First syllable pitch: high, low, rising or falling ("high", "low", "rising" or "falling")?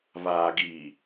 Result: low